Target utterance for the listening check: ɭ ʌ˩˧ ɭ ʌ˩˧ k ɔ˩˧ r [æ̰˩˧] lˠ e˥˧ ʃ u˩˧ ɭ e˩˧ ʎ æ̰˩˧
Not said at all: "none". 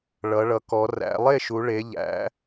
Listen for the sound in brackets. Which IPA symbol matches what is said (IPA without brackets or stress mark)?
æ̰˩˧